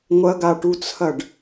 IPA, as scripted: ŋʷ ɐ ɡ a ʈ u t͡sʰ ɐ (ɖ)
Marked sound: correct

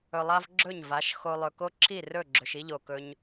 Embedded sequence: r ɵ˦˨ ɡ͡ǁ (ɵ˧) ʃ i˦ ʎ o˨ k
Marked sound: correct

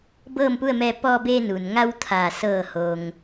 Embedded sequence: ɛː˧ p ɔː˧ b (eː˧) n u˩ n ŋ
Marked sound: correct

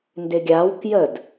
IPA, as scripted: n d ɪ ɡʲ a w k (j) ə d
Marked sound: correct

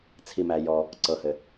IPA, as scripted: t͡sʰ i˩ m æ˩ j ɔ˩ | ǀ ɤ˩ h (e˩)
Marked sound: incorrect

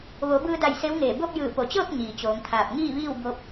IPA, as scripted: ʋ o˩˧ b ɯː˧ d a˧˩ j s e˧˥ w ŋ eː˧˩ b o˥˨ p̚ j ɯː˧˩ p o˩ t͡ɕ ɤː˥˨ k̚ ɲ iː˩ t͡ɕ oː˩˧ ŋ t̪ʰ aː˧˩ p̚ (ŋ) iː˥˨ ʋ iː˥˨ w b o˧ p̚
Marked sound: correct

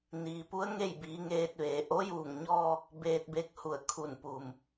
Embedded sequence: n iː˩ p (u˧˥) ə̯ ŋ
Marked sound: correct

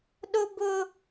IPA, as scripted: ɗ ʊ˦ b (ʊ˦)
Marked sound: correct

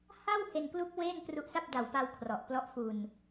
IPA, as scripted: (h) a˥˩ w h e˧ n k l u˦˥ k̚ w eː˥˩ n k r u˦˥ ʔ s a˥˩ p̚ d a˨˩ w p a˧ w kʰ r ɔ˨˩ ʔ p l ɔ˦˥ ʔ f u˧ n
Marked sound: correct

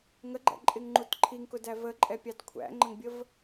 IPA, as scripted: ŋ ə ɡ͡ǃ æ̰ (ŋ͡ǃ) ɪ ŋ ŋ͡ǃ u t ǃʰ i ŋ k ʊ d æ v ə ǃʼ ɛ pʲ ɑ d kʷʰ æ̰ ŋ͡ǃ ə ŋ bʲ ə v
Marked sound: incorrect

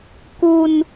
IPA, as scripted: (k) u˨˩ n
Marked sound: correct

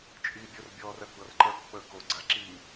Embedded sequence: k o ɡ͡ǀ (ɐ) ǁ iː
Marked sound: incorrect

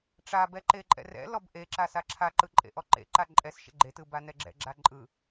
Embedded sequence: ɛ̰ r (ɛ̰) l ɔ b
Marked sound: correct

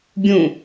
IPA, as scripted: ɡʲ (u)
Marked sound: incorrect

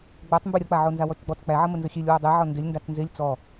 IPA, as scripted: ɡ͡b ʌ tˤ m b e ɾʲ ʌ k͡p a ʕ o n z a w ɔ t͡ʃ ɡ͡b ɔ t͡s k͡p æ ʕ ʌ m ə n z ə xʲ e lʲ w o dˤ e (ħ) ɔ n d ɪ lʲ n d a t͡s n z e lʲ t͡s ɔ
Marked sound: incorrect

